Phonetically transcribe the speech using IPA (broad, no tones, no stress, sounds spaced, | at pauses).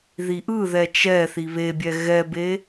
ð i ʔ ɯ ð ɛ t͡ʃ ɛ θ i β e bʲ ɛ ɣ ɛ b e